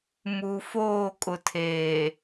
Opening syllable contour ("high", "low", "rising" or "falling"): low